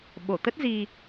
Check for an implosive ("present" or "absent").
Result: present